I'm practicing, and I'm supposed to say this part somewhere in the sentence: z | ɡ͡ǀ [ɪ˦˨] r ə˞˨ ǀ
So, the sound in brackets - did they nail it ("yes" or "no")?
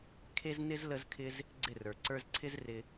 yes